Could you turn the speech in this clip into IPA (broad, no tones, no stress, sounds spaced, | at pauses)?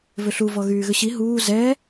v ʏ ɬ u v ɔ ɣ yː ɣ ʏ ɕ i ɦ uː z ɛ